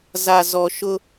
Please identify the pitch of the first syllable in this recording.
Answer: low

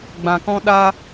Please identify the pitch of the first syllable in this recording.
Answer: low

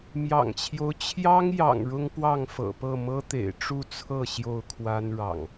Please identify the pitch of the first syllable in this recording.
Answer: low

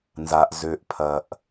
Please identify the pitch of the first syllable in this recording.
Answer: low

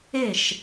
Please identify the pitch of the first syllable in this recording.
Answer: falling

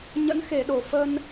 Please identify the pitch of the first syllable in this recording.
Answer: rising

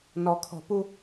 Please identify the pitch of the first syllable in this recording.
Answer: low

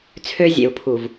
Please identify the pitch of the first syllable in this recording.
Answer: high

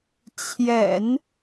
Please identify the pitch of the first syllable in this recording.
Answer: low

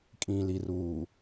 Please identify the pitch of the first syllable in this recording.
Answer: low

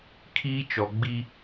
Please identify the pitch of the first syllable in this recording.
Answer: high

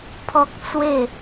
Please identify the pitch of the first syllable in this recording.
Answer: high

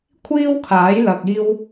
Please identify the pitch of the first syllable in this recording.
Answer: high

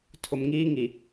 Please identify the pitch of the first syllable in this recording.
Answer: low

